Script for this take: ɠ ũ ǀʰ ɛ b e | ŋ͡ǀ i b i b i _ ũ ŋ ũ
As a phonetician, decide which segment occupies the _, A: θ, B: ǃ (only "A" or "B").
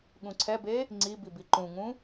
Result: B